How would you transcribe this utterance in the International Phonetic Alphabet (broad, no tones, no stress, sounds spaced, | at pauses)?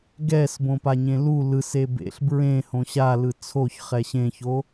ɡ ɛ s b õ p a ɲ ẽ l u l ɯ s e b ḛ ɬ b ɹ ẽ h õ ɕ a l ɯ t͡sʰ o ç χ ɛ ɕ ẽ ç o